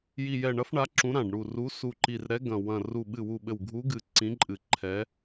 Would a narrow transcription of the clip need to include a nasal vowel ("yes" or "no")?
yes